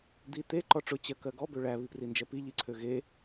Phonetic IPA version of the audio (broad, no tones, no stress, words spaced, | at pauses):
d̪i t̪e ǃɔʈ͡ʂʊ t͡ɕɜkɜɡɔ bøɭæ βiprind͡ʒɜpi ʎiǀʰøɣe